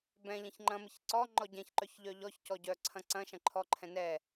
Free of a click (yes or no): no